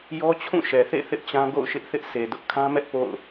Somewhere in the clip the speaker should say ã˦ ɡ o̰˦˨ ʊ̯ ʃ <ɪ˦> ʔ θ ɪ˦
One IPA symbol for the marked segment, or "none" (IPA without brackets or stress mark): ɪ˦